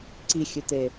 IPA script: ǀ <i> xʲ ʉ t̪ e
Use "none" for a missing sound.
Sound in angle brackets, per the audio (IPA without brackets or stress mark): i